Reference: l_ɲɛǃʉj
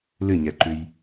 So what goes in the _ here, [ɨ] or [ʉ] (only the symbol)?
ɨ